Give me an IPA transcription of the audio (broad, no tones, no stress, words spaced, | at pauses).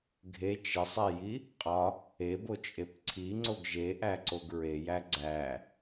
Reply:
ɡʱe t͡ʃesˤeji | qʼɒ | ebot͡ʃʼep ǀʰiŋ͡ǀoɡ ʒeʔæǀoɡ ɹejæ ɡ͡ǀæ